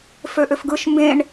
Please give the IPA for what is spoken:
f ø ʔ ø f ɡ ɯ ʃ m b ẽ ɳ

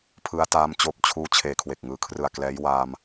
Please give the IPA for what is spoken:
pʰ ɯ˦˥ a̯ t aː˦˥ m t͡ɕ oː˦˥ p̚ t͡ɕʰ uː˦˥ t͡ɕʰ eː˨˩ kʰ w e˨˩ k̚ ŋ ɯː˩˦ kʰ r ɯ˨˩ a̯ k l ɛː˦˥ j w aː˧ m

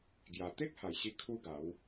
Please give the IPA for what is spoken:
ɡ j a˨˩ t̪ e˦ k̚ h a˨˩ j ɕ i˧ kʰ u˦ ɡ a˨˦ w

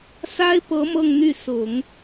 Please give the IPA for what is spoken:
s a˥ ɪ̯ p ɤ˧˥ m ɤ˥˧ ŋ n̪ y˥˩ s ʊ˨˩˦ ŋ

